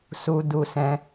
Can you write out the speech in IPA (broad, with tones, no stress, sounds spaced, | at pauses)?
s u˧ d u˧ s ɛ̃˧